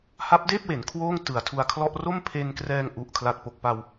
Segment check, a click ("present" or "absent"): absent